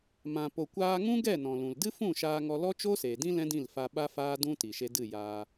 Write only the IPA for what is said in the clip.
m ã˨ p o˨ kʷ aː˧ ŋ ũ˦ ɡ ɛ˦˨ n ɔ̃˨ l ũ˨ l d ɨ˦ f ũ˦˨ ʃ aː˧ ŋ ɔ˧ l ɔ˦ t͡ʃ o˦ s eː˨ d ĩ˦ l ɛ̃˦ d ĩ˦˨ l f a˧ ɓ a˦ f aː˦ d ũ˦ t i˨ ʃ e˧ d ɨ˦˨ j aː˧

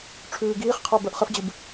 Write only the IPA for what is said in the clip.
ʈ͡ʂʰ ʉː ɡ iː χ qʰ ə˞ b ə˞ ʔ χ ə f d͡ʑ ɨ b

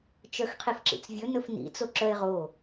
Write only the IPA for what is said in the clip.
t͡ʃ œ x qʰ i f ǁ ḭ t͡s vʲ ɵ n ɵ f n ḭ t͡s o ǁ œ e̯ ʁ o

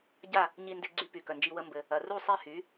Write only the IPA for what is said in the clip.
ɟ a˥˩ | ɲ i˧ n d e˧ ɡ͡ǀ y˧ p y˩ k œ˩ n d͡ʒ i˧ w ə˧ m b ɘ˩ | ɐ˩ r u˥˩ sˤ e˥˩ h y˩˥

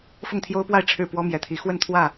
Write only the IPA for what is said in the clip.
f ʊ˥˨ ŋ t̪ʰ j o˦ ʊ̯ p w a˥˨ ɪ̯ ʈ͡ʂʰ ɻ̩˥˨ p w ɔ˦ m j ɛ˨˩ t̪ʰ i˨˦ x w ə˥˨ n t̪ʰ w ä˥˨

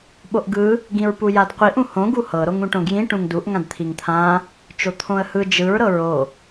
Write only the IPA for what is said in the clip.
ɓ o ʔ ɡ ɯ | ɡ ĩ ɹ p u j a d qʷ i ʔ ũ h õ ɡ u h ɤ ɾ o ŋ ũ ʈ õ ɡ j ĩ ʈ ũ ŋ d u ʔ ŋ ã d t̪ʰ i ŋ t̪ʰ ã | t͡ʃ o t̪ʰ õ ə̯ h ɯ d͡ʒ ɯ ɹ ɾ ɤ ɹ o

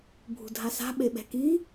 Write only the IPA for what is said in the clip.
bʱ ṳ dʱ a s a̤ ɓ e ɓ ɛ̤ k i

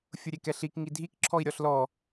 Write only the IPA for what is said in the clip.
fʲ ʊ ɾʲ e k ɛ ɬ i k ŋ i dʱ i k ǁʰ ɔ i̯ ɾʲ ɔ ɬ l ɔ

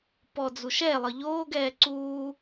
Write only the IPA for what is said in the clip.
p ɔ d͡z u ʃ ɛ lˠ ɤ ʎ oː ɡ ɛː ǀ uː

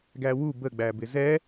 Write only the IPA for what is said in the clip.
ɡ æ w u b ə ɡ͡b æ b ɪ z ɛ

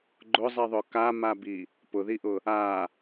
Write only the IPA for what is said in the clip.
ɡ͡ǃ ʊ zˤ i ðˤ ʊ k a m a b i | p ʊ ð i ʔ ʊ | a

